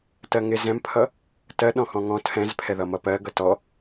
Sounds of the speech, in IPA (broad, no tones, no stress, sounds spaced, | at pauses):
t ɜ ŋ ɪ z ɛ̃ m pʰ ʌ | t ɜ ɗ ɔ̃ x ɔ̃ ŋ ɔ̃ tʰ ɛ̃ z pʰ ɛ ð ʌ m ʌ p ɜ ɡ ʌ t ɔ